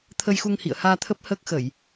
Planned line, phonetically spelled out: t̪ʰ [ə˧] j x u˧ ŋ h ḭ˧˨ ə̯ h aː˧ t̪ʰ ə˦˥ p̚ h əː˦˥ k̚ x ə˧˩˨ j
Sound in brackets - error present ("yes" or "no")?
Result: no